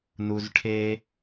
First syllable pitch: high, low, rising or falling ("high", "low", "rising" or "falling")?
low